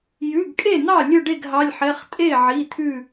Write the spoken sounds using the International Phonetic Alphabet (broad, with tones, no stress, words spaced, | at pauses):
jʉ˩˧˩ɡkʼe˥˩n̪ɑ˥˩ lʲɵ˥˩ɖe˥˩ɡɦɑ˩˧˩lʲħɛ˩˧˩χ tʼe˥˩ʕi˩˧˩ t̪ʰʉ˥˩